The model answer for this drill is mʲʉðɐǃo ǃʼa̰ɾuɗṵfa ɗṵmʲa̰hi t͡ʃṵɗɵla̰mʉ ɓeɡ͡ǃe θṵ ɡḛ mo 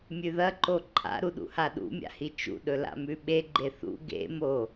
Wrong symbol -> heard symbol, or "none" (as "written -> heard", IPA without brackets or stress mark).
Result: f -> h